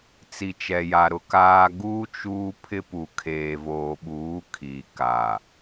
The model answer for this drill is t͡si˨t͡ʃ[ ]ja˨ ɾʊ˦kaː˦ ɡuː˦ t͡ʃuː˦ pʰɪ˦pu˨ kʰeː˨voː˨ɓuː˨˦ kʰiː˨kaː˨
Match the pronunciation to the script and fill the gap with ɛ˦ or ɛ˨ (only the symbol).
ɛ˨